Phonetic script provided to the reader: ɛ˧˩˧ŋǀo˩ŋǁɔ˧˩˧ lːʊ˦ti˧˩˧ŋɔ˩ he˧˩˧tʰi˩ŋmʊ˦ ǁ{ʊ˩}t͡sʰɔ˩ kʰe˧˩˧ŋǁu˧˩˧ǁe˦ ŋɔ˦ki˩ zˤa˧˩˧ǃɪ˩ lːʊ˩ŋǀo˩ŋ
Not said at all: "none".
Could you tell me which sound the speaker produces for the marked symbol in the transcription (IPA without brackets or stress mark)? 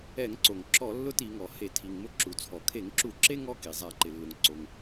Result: u˩